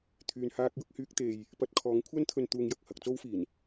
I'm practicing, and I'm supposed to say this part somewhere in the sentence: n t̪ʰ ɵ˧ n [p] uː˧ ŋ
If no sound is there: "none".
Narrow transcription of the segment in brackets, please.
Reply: t̪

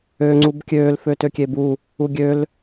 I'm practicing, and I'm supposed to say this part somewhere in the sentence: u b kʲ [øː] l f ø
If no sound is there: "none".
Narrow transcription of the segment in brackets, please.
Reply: øː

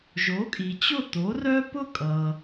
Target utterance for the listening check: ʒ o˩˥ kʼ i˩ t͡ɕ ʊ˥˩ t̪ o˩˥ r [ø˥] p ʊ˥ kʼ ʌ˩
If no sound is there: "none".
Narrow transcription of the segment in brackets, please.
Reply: œ˥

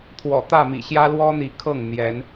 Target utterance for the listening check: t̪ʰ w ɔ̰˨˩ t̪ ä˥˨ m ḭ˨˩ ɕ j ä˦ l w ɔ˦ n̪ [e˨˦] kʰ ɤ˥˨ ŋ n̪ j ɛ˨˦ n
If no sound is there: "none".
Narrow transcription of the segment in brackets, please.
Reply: i˨˦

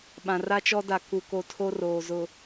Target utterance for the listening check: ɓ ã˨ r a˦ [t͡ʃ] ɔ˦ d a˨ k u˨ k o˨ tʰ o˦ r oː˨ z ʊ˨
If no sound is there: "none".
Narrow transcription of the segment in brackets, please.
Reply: t͡ʃ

